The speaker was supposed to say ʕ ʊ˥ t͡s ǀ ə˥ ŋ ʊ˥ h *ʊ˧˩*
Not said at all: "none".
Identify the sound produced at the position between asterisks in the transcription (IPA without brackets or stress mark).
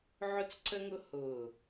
ʊː˧˩